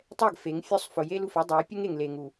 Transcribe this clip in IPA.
tˤ ɛ˦˨ ɡ f e˨˦ ŋ fʲ o˦ sˤ f ʊ˨ j e˦ l u˨ f e˦ dˤ o˨˦ j pʲ ʊ˦ ŋ e˨ ŋ l e˨ ŋ u˨

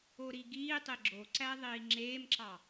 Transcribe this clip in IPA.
o ɾ i ɡ iː tˤ e ɡ͡ǁ o ǀ æ ðˤ iː ŋ͡ǁ eː m ǁ ɑ

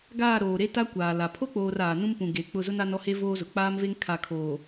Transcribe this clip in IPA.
ɡ aː˦˨ ɾ oː˨ ɾ e˦ t a˦ kʷ aː˨ l a˨ pʰ o˦ k͡p oː˨ r aː˨ n ũ˦ m p ũ˨ ɡ e˨ k͡p ʊ˦˨ z ʊ˦ n a˦ n ɔ˦ h e˦ v oː˦ z ʊ˨ k͡p aː˦ m v e˦ ŋ kʰ a˨ kʰ oː˨

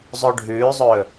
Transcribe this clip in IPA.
zˤ o ɖʱ ʉː zˤ ɵ

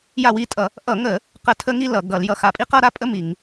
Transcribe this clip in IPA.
j a˦˨ w i˦˨ tʼ ʌ˧˩˧ | ʔ ʌ˧˩˧ ŋ ə˧˩˧ | q ə˦˨ tʰ ə˥ ŋ i˥ l ʌ˧˩˧ ɡ ʌ˧˩˧ l j ʌ˦˨ x a˦˨ pʼ i˥ q ʌ˥ ɾ a˥ pʼ ə˥ m i˧˩˧ ŋ

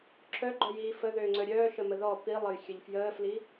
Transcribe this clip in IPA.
ǁʰ œ ɡ͡ǃ œ j iː f ə ð øː ŋ͡ǀ œ ɾʲ œː ʃ ə m ə ð ɔ p i lˠ ə j xʲ ə ʎ f j əː f l i

